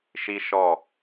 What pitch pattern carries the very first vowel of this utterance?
high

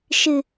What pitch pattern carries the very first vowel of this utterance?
low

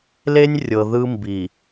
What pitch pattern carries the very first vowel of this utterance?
high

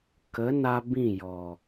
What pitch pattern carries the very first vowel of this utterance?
rising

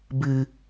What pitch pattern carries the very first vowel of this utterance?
low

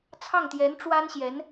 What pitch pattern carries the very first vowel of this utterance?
falling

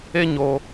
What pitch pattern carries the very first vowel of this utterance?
high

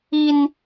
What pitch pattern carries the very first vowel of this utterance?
high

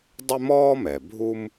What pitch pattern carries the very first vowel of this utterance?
high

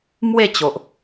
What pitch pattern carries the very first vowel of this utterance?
falling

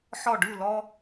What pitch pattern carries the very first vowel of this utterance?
falling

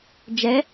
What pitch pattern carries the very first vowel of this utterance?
rising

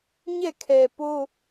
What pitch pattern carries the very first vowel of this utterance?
falling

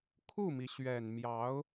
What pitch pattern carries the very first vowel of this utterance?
falling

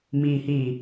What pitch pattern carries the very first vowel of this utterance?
low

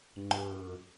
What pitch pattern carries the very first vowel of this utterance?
low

